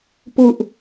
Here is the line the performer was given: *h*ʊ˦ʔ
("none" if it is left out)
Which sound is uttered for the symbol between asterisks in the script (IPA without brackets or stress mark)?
p